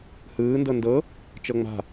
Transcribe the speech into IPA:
hɯːndɤ ndɤ | t͡ʃɤŋ͡ma̤

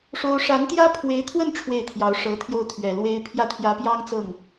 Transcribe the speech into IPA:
ʂo˥ʊ̯ ʂa˧˥nt̪jä˥pʰwe˧˥ɪ̯t̪ʰwə˥˧n ʈ͡ʂʰwe˥˩ɪ̯t̪ʰjɑ˧˥ʊ̯ʂɤ˧˥t̪ʰjo˥˩ʊ̯ t̪ʰɥɛ˨˩lwe˥ɪ̯ pʰjä˥˩t̪ʰjä˧˥pjɑ˥ŋ t͡sɤ˥˩ŋ

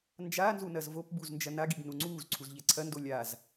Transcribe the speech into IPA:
nd͡ʒaːnzu nɐzvopbuz nd͡ʒɐnaɡiɡ nuŋ͡ǀuːzǀʰuz ʎɛǀʰɐndo lʲaz

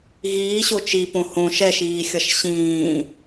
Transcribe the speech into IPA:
ɣiːɕo t͡ʃipõ hõ ʃɛʃiːxʲʌʃ ɕĩː

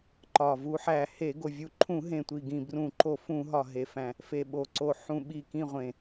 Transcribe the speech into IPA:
ǃɒ˨˩ vu˧˩˧ħæ˨˩ he˧˩˧ɡo˨˩vʲu˧˩˧ǃʰũ˧˩˧ ɦẽ˨˩tʷi˨˩ɡĩ˨˩ brũ˧˩˧ǃo˧˩˧fũ˧˩˧ɦɒ˨˩ ɦe˨˩fæ̃˨˩ | fe˨˩ɓo˨˩ǀo˨˩ ħũ˨˩ ɓi˨˩kĩ˨˩ ʁʷẽ˨˩

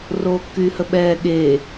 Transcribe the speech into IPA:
roːkːyːhəɓɛː ɠeː

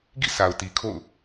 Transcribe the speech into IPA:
ɡḭ˦˨sʰa˨ʊ̯ti˨ kʰo̰˦˨ʊ̯

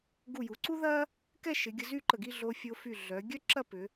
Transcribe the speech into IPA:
ɡu˧˩ju˩˧ǀu˥ðɐ˥ | kɛ˥˧ʃɪ˩˧ ɡʲə˧zy˥˧ǃə˧˩ɡi˥˧ ɮo˧ fʲo˧fy˧˩ɮœ˩˧ ɡʲœ˥ǁɐ˥˧pʏ˩˧

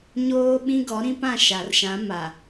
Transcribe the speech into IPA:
ɲoː˦ɓĩ˦ ɡɔ˨˦ɾĩ˦pã˦˨ ʃa˨rʃã˨˦ ma˨

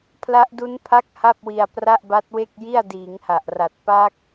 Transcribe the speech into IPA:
pʰla˦˥ʔdu˦˥npʰa˦˥k̚ ha˥˩p̚wi˧a̯ pra˥˩ʔba˦˥t̚we˥˩k̚ji˥˩a̯ diː˩˦ŋha˨˩ʔra˨˩t̚ pa˦˥k̚

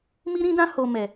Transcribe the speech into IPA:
mi˦ɾĩ˦dã˦ ho˧ mɛ˨

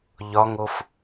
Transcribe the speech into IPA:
ʎɒŋof

